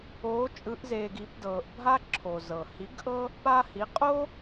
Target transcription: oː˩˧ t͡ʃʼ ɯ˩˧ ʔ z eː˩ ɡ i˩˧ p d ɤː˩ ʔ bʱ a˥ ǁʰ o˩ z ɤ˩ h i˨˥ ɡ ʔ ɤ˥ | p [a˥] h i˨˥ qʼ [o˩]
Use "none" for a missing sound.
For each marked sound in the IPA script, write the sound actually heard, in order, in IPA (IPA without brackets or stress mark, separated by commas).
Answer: a˥, o˥